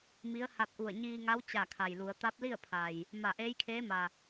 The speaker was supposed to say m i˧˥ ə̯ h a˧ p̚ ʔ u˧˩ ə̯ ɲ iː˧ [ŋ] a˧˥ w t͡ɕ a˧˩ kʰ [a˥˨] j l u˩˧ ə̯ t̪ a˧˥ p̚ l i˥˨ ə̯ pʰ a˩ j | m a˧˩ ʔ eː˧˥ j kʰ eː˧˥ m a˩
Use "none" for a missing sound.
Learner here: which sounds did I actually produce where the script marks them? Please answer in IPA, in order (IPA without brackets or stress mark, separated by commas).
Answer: ŋ, a˩